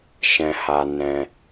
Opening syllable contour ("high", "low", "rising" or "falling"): low